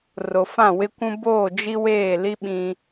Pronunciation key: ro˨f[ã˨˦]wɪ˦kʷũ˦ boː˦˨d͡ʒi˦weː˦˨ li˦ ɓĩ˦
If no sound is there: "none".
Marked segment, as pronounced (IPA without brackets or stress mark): ã˦˨